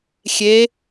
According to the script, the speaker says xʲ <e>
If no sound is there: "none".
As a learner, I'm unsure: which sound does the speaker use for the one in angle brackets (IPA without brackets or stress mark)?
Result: e